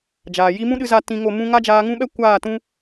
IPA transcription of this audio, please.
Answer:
d͡ʒ aː˨ j i˦ m ũ˦ ɗ ɨ˧ z a˧ t ĩ˧ ŋ o˦˨ m ũ˦ ŋ a˦ d͡ʒ aː˧ ŋ ũ˦ ɓ ɛ˦ kʷ aː˦˨ t ũ˦

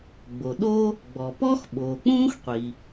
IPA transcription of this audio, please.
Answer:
ɡ͡b o˩ ɗ o˥ | ɡ͡b ɔ˩ p ɔ˥ x ɓ oː˩ k͡p ũː˥ x qʷ i˩

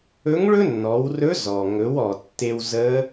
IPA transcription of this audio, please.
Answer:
ɵ˧˥ ŋ ɭ ɵ˥ nː ɔ˩˧ w r ɵ˧˥ z ɔ˩ ŋ ɵ˩˧ w ɔ˩ tː e˧ w z ə˧˥

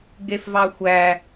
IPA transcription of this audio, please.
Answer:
ɡ e f v ɑ xʷ æ

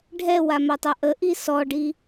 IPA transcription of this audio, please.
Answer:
ɖʱ ɛ w a m a tˤ a ʔ ə ʔ i s ɔ ɖ i

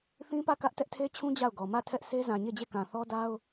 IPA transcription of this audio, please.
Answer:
θ ĩ˦ p ä˦˨ k ä˦ ʔ t ɛ˦ ʔ tʰ e˦ t͡ɕʰ ũ˦ d͡ʑ a˦˨ ʊ̯ ɡ ɔ˨ m ä˦˨ tʰ ɛ˦ ʔ s e˦ z ã˨ ɲ e˦˨ d͡ʑ e˦˨ k ã˨ θ ɔ˦ d a˦ ʊ̯

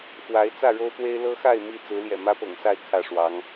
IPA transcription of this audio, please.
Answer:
x w a˨˦ ɪ̯ t͡s ä˥˨ ɻ o˦ ʊ̯ t̪ w e˦ ɪ̯ l ɤ˦ x a˥˨ ɪ̯ m i˥˨ t͡s ɹ̩˨˦ l j ɛ̰˨˩ m ä˦ p ɤ̰˨˩ ŋ s a˥˨ ɪ̯ kʰ ä˥˨ ʂ w ɑ˨˦ ŋ

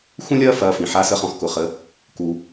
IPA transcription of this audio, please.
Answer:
x ũ˥ lʲ ɐː˥ f ɐː˧ f ĩ˩ ħ a˧˥ s ə˧˥ χ ɔ̃˧ x k ʊ˩ χ ə˩˧ | k u˩

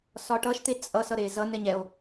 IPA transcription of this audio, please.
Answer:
s ɒ ʈ ʌ ʃ t̪ e t͡sʼ ʌ s ʌ ɾ e z ʌ n ɛ ɲ ɛ o̯

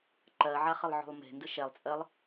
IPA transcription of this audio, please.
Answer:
ǃ ɜ ʕ a χ ə lˠ ʕ o̤ lˠ m e̤ n d ɨ ʃ ɛ lˠ t͡sʼ ɜ lˠ

